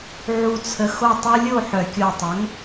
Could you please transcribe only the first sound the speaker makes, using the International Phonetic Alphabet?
ʕ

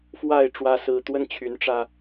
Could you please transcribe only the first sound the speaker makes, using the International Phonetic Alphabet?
f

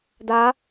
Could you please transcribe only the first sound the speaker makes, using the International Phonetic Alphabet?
d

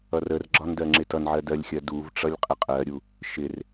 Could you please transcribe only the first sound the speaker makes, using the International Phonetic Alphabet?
ʌ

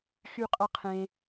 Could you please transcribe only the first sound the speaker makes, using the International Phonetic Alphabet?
x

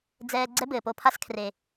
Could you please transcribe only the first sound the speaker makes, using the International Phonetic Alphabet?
d͡z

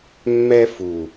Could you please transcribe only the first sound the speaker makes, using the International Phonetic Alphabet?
mː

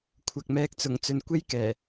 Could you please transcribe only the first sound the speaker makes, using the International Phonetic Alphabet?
kʷʰ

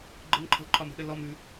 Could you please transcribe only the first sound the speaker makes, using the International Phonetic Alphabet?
ɡ͡ǃ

